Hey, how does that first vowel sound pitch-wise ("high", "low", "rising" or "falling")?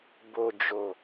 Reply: low